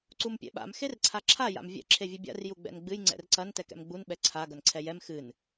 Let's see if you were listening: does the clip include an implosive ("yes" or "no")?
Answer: yes